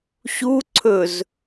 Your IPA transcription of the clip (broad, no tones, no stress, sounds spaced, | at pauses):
ɕ u ǀʰ ɵ z